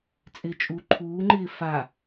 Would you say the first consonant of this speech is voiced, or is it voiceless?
voiceless